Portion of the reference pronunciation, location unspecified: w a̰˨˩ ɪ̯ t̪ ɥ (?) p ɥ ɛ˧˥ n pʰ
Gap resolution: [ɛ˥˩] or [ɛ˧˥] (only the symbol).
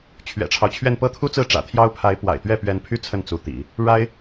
ɛ˥˩